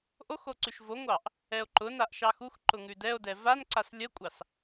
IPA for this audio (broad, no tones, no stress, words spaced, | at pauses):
ʔoxo ǀʉʃvoŋʷɑʔ | ɛo̯ǃʊnaʔ ʃɑxuxǃʊ ŋʉdɛo̯dɛ vanǀas lʲəkʷʼɑs